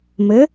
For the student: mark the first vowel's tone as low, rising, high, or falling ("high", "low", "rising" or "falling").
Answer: rising